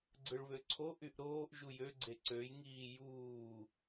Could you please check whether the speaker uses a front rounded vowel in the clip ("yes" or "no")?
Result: yes